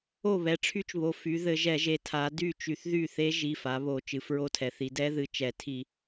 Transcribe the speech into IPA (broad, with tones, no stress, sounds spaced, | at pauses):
o˥˩ β ɛ˩˧˩ ʈ͡ʂʰ y˦˥ t͡ʃ β o˩˧˩ f y˩˧ ð ɘ˧˩˧ ʒ ɛ˧˩˧ ʒ e˩˧ tʰ a˩˧ d y˥˩ t͡ʃ y˧˩˧ θ ð y˥˩ θ e˦˥ ʒ i˩˧˩ f a˩˧ β o˧˩˧ t͡ʃ ɨ˩˧ f ɹ o˦˥ tʰ ɛ˩˧ θ i˩˧ d ɛ˦˥ ð ɨ˩˧˩ t͡ʃ ɛ˧˩˧ tʰ i˧˩˧